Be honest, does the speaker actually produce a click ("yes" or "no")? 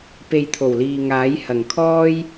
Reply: no